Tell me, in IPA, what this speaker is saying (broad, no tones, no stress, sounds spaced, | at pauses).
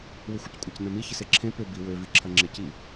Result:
w ʏ xʷ ə c kʷʼ ɐ c n œ̃ m i ç ɪ s e ǁʰ ẽ p ʏ b i w ø v i ǁʰ ɐ ŋ͡ǁ e c i